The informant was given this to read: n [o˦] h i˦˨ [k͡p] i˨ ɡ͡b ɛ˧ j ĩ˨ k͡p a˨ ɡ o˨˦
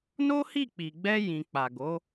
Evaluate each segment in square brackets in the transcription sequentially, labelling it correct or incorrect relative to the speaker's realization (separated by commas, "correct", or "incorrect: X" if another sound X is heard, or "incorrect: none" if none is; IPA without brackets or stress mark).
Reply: correct, correct